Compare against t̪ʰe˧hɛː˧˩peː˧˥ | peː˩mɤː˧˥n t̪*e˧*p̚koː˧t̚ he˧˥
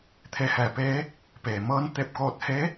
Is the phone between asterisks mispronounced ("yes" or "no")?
no